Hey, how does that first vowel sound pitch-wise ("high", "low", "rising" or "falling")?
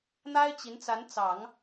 high